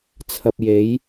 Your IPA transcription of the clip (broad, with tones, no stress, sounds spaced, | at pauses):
t͡sʰ ɐ˧ p̚ j e˨˥ j